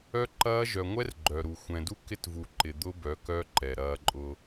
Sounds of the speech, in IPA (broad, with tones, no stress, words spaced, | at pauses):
œ˦ǃɐː˦ ʒœ˨ŋʷɛ˦r ɡ͡ǃœ˨ɾu˨ xʷɛ̃˨du˦ kɪ˦tvu˨ ǃɪ˨d̪ʊ˦ bœ˨˦kœ˦ ǃɛ˨ɾɐː˦ ǃʼʊ˦